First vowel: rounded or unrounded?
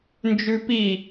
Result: rounded